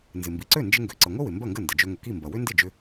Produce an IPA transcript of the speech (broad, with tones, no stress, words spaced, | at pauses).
nzɪ˩mbi˩ǀø˥˩ nd͡ʒɪ˧ŋɡø˩ǀə˩ŋʷə˥ wɪ˩ mbɐ˥˩ŋɡə˥˩ndə˩ d͡ʒø˧ŋə˩ki˥˩mbɐ˩ wʏ˥ndɪ˥˩d͡ʒʏ˧